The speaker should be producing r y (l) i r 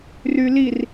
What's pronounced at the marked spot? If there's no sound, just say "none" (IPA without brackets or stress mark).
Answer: l